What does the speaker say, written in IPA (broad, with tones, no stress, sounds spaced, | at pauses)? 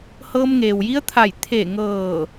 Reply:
h ɤː˧ m ŋ eː˩ w j i˧˥ ə̯ t̪ʰ a˧˩ j t̪ʰ eː˧˩ ŋ ɤː˧˩